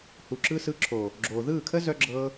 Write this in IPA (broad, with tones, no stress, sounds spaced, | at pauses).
h u˨ ǁ ɯ˧ s ɯ˧ ǁʰ o˨ | ɡ͡ǁ oː˨ ð ɯː˦˨ kʰ ə˦ z œ˧ ɡ͡ǁ ɤ˧